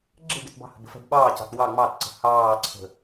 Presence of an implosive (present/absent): present